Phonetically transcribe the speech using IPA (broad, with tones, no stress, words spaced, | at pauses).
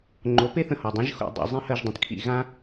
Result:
ŋ͡ǃo˩˥pe˥θə̃˧hɔ˩ dˤĩ˩˥ʒxo̰˥˩ dˤo̰˥˩ zˤĩ˥˩hɜ˥˩ʒdˤə̃˩˥tkʰḭ˥˩ ɣã˥